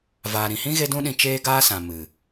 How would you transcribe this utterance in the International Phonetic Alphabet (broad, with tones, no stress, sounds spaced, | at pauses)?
v aː˨ ɾ ĩ˨ h ĩ˦ ɣ e˦ d ũ˦ ɗ ĩ˧ t͡ʃ eː˦ ɡ aː˦ s ã˨ m ɨ˨